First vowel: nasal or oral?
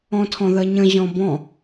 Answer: nasal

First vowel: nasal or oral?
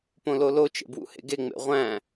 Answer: nasal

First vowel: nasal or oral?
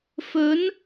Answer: oral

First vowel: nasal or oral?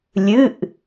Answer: oral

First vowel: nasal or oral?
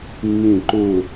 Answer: nasal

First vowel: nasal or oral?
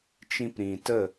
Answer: nasal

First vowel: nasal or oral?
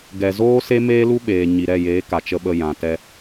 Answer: oral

